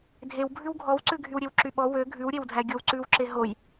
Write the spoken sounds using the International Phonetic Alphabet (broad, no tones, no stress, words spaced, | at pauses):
dʱew bʱʉwɡʱɔwǀʉ ɡʱywɾʲewǁyɓɔ wø ɡʱʉwɾʲewdʱæ ɡʲowǀʉwǁe ɦoj